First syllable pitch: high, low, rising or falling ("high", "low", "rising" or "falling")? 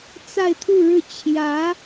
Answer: falling